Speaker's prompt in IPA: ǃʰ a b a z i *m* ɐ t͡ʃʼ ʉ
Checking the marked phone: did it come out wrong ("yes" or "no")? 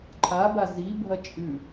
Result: yes